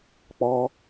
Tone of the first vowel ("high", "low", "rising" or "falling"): high